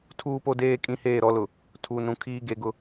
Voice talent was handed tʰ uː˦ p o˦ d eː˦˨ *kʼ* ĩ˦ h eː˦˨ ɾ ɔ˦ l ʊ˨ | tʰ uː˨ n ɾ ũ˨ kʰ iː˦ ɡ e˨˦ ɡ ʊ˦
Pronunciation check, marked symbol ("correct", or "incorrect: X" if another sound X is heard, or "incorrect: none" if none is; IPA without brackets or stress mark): correct